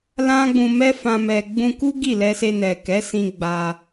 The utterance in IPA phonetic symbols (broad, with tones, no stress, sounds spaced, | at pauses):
l ã˦ ɡ͡b ũ˧ m ɛ˦ f ã˧ m ɛ˨ ɡ͡b ũ˧ k u˦ ɡ i˦˨ l ɛ˧ s e˧ n ɛ˨ k ɛ˨˦ s ĩ˧ ɡ͡b a˧